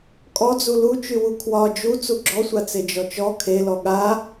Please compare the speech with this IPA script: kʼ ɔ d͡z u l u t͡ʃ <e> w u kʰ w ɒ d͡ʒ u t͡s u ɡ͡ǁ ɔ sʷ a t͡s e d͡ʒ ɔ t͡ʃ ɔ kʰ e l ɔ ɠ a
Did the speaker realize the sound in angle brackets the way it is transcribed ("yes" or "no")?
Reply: no